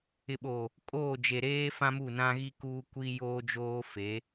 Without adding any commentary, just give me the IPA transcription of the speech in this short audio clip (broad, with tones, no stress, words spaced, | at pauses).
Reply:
ɪ˨ɓo˨ | kʼoː˦˨d͡ʒe˨ ɾeː˦ fã˦mu˦˨nã˦ɣi˦ kuː˦ kʷi˦joː˦d͡ʒoː˦ fe˨˦